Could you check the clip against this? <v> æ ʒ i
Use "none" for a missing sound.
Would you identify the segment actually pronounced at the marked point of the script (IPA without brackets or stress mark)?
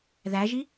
ð